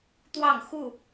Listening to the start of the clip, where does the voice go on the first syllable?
falling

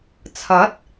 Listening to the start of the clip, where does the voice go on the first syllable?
rising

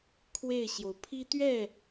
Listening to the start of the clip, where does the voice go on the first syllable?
falling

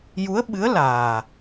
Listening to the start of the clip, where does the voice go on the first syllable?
rising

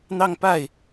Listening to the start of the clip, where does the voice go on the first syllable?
falling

